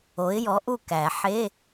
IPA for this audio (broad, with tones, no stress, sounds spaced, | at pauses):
o˨˦ ɪ̯ j ɔ˨˦ ʔ u˥˨ k æ˨˩˦ ħ e˧˥˧